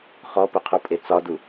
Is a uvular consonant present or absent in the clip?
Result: present